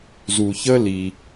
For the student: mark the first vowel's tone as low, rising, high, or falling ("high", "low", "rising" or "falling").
low